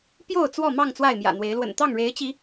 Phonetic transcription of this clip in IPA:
p j o˥˨ ʊ̯ t͡s w ɔ˥˨ m ɑ˥˨ ŋ t͡s w a˥˨ ɪ̯ m j ä̰˨˩ n̪ w e˨˦ ɪ̯ l w ə̰˨˩ n t̪ ɑ˥˨ ŋ ɻ e˨˦ ɪ̯ t͡ɕ i˨˦

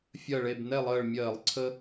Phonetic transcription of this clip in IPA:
fʲ ɜ˧˩ ɭ e˧˩ b n ɛ˥˨ lˠ əː˧˩ ɭ mʲ ɜː˧˩˧ lˠ ǀʰ ə˦

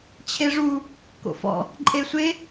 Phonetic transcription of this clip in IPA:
t͡ɕʰ e ʐ u | k o̰ f ɔ̰ | ǃʼ e sʷ e

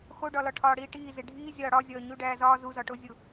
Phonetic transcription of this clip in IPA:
x o ɖ ɒ l ɒ ʈʰ ɒː ɽ iː ʈ iː z e ɖʱ iː zʲ ɒː ɽ ɒ zʲ ɒː ɲ u ɖ æː z ɒː z u z ɒ ʈ o zʲ o

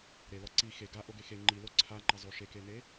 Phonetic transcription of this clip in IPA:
ɾ e l ɔ ǀ i x e ɡ a ʔ o ɡ e x e ŋ͡ǃ i l o ǀʰ a ŋ͡ǃ ɐ zˤ o ʃ e k e n e

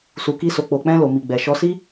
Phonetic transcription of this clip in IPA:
s u˨ k i˧ s o˨ k͡p o˨ k͡p ɛ̃˧ l o˨ m i˨ ɡ͡b ɛ˨ ʃ ɔ˧ s i˦

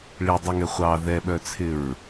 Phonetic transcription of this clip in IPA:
ɭ i dˤ ɨ ŋ ɛ χʷ ɑ ð ɛ ɓ œ t͡sʰ ɪ ɹ

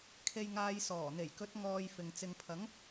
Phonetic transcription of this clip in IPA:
kʰ e˨ j ŋ aː˨ j s ɔː˨˩ n̪ e˨˩ j k ɵ˨˥ t̚ ŋ ɔː˨ j f ɪ˨ ŋ t͡s ɪ˨ ŋ pʰ ɐ˨˥ ŋ

